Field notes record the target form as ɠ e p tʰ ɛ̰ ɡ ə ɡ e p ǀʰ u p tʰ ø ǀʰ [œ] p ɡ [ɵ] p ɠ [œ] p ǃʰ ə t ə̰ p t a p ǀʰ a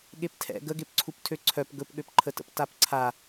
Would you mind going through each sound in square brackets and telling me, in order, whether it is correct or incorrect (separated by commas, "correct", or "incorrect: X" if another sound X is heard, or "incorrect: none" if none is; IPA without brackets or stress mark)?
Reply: correct, correct, incorrect: ø